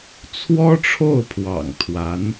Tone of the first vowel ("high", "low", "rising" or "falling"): high